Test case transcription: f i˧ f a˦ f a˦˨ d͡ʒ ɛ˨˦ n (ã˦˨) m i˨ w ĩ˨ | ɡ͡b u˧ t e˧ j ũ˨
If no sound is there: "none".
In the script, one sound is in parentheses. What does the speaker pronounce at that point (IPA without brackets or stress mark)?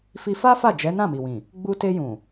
ã˦˨